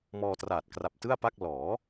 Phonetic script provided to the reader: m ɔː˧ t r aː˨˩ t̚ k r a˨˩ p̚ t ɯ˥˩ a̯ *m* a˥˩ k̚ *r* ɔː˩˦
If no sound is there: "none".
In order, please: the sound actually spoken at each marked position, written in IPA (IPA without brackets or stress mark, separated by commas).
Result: p, l